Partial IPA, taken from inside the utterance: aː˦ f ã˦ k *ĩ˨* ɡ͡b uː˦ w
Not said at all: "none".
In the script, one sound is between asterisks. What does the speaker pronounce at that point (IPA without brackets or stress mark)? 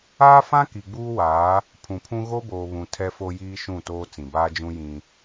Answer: i˨